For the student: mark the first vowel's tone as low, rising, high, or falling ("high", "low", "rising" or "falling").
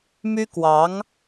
high